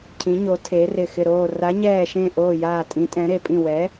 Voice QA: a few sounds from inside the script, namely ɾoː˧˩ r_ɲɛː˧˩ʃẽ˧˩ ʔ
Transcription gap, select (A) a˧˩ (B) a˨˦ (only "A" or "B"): B